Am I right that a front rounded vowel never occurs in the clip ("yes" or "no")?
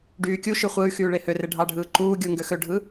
no